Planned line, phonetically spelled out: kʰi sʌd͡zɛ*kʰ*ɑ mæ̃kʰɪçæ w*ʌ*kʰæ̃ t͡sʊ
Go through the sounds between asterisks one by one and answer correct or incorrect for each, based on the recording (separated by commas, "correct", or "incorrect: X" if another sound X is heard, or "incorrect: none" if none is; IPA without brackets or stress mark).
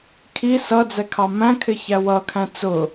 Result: correct, correct